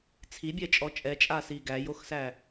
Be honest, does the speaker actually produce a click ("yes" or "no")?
no